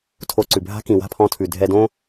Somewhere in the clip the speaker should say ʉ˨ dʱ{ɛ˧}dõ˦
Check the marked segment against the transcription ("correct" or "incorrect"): correct